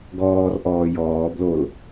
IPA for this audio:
ɡɔːrʔɔː jɔːblol

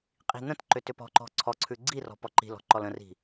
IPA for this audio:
qʼi̤n̪ə̃tǃʏ tʏpɔ̤ǃɔ̤ ǀʰɔǀʰʉ ɡ͡ǀirɔ̤ pɔǃi̤lɔ̤ ǃɔlə̃ri̤

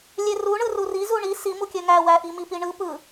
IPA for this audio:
lʲeruɳɯ ruri zuɳi simukʲø ŋæwæʔi mipiɳɯ pɯ

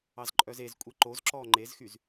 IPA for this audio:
ɑzǃʼœzezkʷʼi ǃozǁɔː ŋ͡ǃezxyz

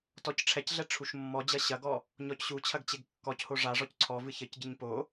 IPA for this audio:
tɔcʈ͡ʂʰɛcɮɛ ʈ͡ʂʰuʃmːɔd͡ʑɐ ɕɐɡɔ | ɲɔcɕut͡ɕʰɐɡ t͡ɕeɡkːɔcho ʐaʐɔc ǀʰɔvɨ çɘcɟɨɲ po

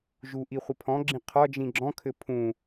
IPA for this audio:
ʒuʔi χʷəpʰɔ̃ɡ͡ǁĩ qʰɒd͡ʒĩ ɡ͡ǁɔ̃kʰɘ pʰũ

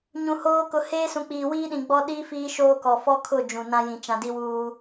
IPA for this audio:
ɲũ˨hoː˦ kʊ˨heː˦sũ˨k͡piː˨ wiː˦ɗĩ˨ɡ͡bɔ˦ɗiː˦ fiː˦ʃoː˦kɔ˨ fɔ˦kʰʊ˦˨ d͡ʒũ˨nã˦jĩ˨ t͡ʃã˨di˦wuː˦

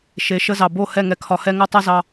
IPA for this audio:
ʃe˨˦ʃə˦zɑ˨ bo˦˨ hɛ˦˨ŋɛ˨kʰɒ˨hɛ˦ ŋœ˦tˤe˦zɑ˦

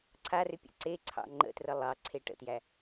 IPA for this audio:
ǀʰarʏ pʲə̰ǀeǀʰɑ̰ ŋ͡ǃə̰trə lˠɑ ǀʰeʈə̰tjæ

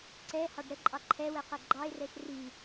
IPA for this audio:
ǀɛ hɑɖɾəǃʼɑ ǃʰɛwɛ qɛɡ͡ǃɑɪ̯rɛʃ ri

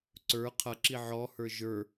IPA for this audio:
ǀə˞ qʰʌǁi ʕɔhə˞ ʒə˞

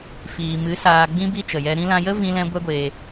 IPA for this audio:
fiː˨mɨ˨˦ saː˧ɡ͡bĩ˦ bi˦t͡ʃə˨jɛ˧ ɾĩ˧lã˧jə˦ vĩ˦lɛ̃˦ ɡʷɛ˦ɡʷeː˧

